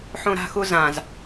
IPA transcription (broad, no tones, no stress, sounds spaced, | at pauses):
ħ ũ ɾ a̤ x u z ã z